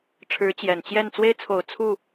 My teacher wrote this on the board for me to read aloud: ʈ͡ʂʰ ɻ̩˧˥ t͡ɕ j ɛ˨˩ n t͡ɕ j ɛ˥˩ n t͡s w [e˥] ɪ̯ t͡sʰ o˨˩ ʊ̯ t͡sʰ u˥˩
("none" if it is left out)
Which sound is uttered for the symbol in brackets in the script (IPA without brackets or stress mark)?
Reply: e˥